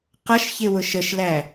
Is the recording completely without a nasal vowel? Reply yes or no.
yes